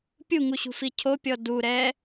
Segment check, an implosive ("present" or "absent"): absent